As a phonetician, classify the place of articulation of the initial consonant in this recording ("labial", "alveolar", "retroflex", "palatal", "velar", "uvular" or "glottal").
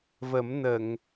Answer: labial